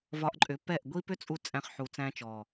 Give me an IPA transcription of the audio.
vɒ˧ʔǃʼʏ˨˦ pɛ˦˨ʔɡʷi˦ pʏ˦t͡sʼu˧ t͡sʼæ̃˧χħu˨t͡sæ̃˧ t͡ʃɔ˨

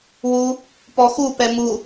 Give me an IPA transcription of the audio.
wu | pɔxupɛ mu

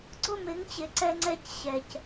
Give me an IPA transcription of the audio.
ɡ͡ǀʊ˦˨mɪ˨˦ŋt͡ɕɪ˨ ǀɛ˦ŋ͡ǀɛ˦c ɕɛ˨c

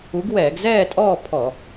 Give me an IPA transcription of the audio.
u˨˥ɡwɛː˧˩˧ɡ zɛː˥˨tʼɔː˥˨ pʰɔ˧˩˧

